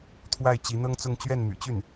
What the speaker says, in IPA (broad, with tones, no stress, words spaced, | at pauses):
t̪ʰwa˥˩ɪ̯ t͡ɕi˧˥ n̪ɤ˥ŋt͡sʊ˥˧ŋ t͡ɕɥɛ˥˩nmy̰˨˩t͡ɕy˥˩n